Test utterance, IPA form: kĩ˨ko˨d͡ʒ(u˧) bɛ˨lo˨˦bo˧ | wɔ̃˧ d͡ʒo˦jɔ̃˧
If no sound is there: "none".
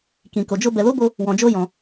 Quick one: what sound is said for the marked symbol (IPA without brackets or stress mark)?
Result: o˧